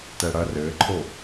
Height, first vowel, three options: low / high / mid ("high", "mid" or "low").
mid